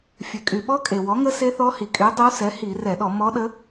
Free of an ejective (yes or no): no